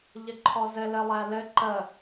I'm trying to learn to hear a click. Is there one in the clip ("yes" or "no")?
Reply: yes